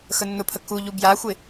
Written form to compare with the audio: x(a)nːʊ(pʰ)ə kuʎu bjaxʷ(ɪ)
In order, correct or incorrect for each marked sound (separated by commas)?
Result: incorrect, correct, correct